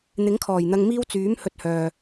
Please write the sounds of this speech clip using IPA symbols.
n̪ ɪ˨˥ ŋ kʰ ɔː˨˩ j n̪ ɐ˧ ŋ m iː˥ w t͡s yː˨˥ m h ɵ˨ t̚ h œː˨

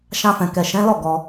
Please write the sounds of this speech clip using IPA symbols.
ʃ ã˧ f ɛ̃˨ k ɛ˨ ʃ ɛ̃˨˦ l ɔ˦˨ ɡ ɔ˧

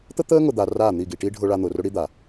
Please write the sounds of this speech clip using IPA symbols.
t̪ ə˦ t̪ əː˦ ŋ ʊ˨ d̪ a˨ r aː˦˨ n̪ i˦˨ ɡ i˨ ʈ i˦ ɖʱ ʊː˦ ɭ a˦ n̪ ʊː˨ r ʊ˦ ɽ i˦ d̪ a˨

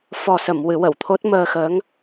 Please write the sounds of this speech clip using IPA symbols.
f ɔ˨˩ s ə˨˩˨ m w ɨ˨˩˦ w ə˨˩˨ w t̪ʰ o˦˥ t̚ m əː˧ x ə˧˥ ŋ

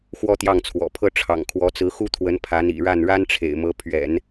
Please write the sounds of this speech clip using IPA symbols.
x w ɔ˥ t̪ j ɑ˥˩ ŋ t͡sʰ w ɔ̰˨˩ pʰ ɤ˥ ʈ͡ʂʰ ɑ̰˨˩ ŋ kʰ w ɔ˧˥ t͡s ɹ̩˧˥ x u˥ t̪ʰ w ə˧˥ n pʰ a˧˥ n ḭ˨˩ ɻ a˥˩ n ɻ a˥ n ʈ͡ʂʰ ḛ˨˩ ɪ̯ m ɤ˧˥ pʰ ɥ ɛ̰˨˩˦ n

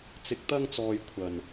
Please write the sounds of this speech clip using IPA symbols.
t͡s ɪ˨ k̚ t̪ ɐ˧ ŋ t͡s ɔː˨ j kʷʰ ɐ˧ n

